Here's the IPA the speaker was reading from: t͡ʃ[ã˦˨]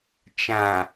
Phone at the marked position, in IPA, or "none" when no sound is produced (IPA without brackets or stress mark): ã˨